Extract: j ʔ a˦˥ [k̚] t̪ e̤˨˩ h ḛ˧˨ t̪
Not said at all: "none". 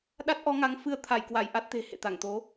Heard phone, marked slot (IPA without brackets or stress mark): t̚